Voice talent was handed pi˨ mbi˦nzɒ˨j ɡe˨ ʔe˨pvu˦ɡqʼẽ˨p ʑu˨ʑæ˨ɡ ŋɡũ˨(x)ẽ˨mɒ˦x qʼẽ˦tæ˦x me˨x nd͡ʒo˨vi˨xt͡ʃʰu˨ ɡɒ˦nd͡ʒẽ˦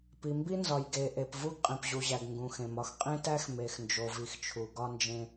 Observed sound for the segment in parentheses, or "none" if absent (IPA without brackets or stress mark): x